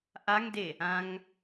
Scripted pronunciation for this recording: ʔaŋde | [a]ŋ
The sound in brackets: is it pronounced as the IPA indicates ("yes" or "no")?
no